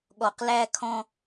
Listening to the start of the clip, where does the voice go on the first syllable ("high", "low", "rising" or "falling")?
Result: low